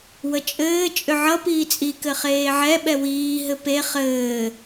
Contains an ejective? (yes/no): yes